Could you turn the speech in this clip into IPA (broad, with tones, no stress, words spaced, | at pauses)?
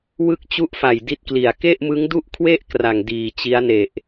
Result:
wɯ˥˩k̚t͡ɕu˥˩ʔfa˨˩j di˥˩t̚kli˨˩a̯ ke˥˩ʔmɯ˦˥ŋdu˥˩ʔkʰwe˥˩ʔ kra˨˩ŋdiː˨˩t͡ɕi˦˥a̯ne˨˩ʔ